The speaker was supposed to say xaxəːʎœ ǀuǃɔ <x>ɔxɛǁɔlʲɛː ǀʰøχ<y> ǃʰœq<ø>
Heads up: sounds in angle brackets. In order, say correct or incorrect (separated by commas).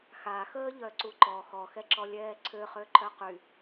correct, incorrect, incorrect